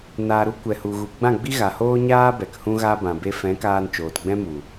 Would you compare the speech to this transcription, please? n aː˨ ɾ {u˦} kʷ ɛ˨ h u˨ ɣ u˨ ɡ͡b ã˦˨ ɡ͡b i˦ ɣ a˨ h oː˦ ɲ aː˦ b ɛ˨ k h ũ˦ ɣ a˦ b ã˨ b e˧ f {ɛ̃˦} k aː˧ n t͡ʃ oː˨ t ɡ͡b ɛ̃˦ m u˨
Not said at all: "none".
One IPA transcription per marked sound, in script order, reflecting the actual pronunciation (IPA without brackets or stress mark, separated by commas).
u˦, ɛ̃˨˦